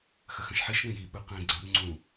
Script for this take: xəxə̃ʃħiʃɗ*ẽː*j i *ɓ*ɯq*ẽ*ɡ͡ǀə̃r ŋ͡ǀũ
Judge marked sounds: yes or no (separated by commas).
no, yes, no